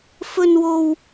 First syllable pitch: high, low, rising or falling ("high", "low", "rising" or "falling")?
high